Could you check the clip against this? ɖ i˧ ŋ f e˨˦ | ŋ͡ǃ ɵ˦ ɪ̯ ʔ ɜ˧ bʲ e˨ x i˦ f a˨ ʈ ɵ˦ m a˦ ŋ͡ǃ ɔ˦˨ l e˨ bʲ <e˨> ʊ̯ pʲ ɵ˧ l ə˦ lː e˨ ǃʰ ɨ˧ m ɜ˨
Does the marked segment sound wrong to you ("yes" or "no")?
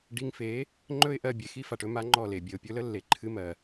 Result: no